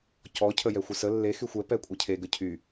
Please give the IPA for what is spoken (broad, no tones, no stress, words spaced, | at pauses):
cɔ cʰəjɛxʷəsə lːe xyxʷɛ pɛkʷʼəcʰe ɡəcʰy